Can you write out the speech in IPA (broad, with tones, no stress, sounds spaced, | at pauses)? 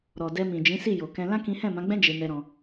ɾ ɔ˨ d ɛ˧ m ĩ˨ d͡ʒ ĩ˨˦ s i˦˨ j o˨ k ɛ̃˧ l ã˦ k ĩ˦ h ɛ̃˦˨ m ã˨˦ ɡ͡b ɛ̃˦ d͡ʒ e˧ n ɛ˧ ɾ ɔ̃˧